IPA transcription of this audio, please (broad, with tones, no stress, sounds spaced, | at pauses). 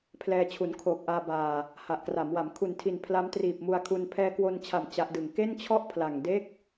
pʰ l ɛː˧ t͡ɕʰ u˩˦ n kʰ oː˨˩ k̚ ʔ aː˧ b aː˨˩ | h a˨˩ ʔ k r a˩˦ m w a˩˦ m kʰ u˨˩ n tʰ i˨˩ n pʰ l a˦˥ m t r iː˨˩ p̚ m u˧ a̯ kʰ u˧ n pʰ ɛː˧ k w o˧ n t͡ɕʰ a˨˩ m t͡ɕ a˦˥ ʔ d ɯ˨˩ ŋ k e˥˩ n t͡ɕʰ ɔ˥˩ ʔ pʰ l a˨˩ ŋ d e˦˥ k̚